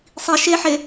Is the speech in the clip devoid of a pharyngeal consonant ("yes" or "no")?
no